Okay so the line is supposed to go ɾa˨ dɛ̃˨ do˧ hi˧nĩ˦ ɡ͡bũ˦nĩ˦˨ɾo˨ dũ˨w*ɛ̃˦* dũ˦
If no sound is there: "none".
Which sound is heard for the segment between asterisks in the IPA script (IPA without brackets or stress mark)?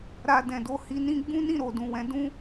ɛ̃˨˦